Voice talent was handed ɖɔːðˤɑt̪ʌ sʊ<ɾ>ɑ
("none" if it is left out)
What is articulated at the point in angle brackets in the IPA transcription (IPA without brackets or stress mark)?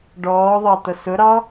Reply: ɾ